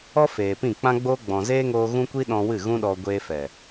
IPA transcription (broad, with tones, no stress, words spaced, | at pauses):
ɔ˦feː˨ pĩ˦˨k͡pã˦ɡ͡boː˦ ɡ͡bɔ̃˨zeː˦ŋoː˧ ɣũ˦kʷi˦ɗɔ̃˧wɨ˦˨ ɣũ˦ɗɔ˧ ɡʷeː˧fɛ˨